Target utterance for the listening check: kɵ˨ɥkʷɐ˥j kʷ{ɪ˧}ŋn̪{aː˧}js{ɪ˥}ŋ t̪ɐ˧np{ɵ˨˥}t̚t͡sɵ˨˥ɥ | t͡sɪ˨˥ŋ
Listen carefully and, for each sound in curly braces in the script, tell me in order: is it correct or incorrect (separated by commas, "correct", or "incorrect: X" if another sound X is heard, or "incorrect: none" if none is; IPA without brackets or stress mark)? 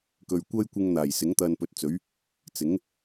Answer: correct, incorrect: aː˨˩, incorrect: ɪ˨˥, correct